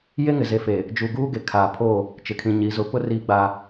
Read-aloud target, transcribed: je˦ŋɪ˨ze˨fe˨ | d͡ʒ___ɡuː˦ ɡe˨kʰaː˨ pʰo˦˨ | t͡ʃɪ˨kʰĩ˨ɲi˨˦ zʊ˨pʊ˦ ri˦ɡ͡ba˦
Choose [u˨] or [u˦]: u˨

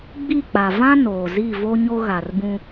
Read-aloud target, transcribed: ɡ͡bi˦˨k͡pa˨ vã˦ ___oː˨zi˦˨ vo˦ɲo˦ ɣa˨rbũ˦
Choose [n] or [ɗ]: n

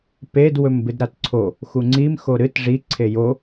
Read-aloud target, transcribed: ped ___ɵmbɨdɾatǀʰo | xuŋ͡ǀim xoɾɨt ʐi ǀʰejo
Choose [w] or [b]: w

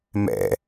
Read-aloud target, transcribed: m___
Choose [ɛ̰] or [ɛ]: ɛ̰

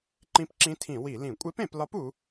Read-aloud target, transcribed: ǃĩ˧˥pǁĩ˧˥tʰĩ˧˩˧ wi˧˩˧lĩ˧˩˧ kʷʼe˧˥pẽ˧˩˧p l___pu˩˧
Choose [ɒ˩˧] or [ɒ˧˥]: ɒ˧˥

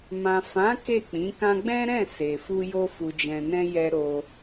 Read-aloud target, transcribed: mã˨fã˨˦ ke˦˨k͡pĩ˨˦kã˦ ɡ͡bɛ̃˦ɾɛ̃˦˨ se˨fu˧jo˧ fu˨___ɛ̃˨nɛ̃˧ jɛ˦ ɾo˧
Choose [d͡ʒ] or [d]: d͡ʒ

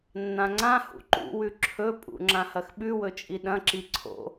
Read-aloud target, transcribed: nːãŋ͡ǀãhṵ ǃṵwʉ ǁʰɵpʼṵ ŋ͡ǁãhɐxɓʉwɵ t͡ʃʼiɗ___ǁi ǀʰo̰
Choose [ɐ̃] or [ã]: ɐ̃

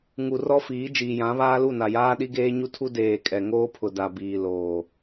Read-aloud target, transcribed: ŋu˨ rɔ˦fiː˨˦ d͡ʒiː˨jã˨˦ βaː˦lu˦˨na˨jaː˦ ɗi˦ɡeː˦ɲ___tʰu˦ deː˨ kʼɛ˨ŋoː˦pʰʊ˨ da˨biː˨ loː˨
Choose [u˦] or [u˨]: u˦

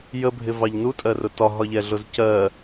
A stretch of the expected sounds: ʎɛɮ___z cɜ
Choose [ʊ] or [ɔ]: ʊ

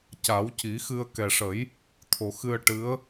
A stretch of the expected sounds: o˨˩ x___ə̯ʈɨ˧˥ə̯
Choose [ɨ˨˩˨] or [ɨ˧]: ɨ˧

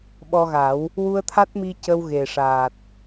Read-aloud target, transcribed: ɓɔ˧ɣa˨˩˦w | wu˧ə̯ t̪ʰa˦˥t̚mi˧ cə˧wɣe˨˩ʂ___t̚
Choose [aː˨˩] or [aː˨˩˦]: aː˨˩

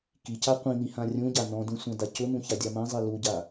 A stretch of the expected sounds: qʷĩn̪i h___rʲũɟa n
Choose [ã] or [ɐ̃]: ã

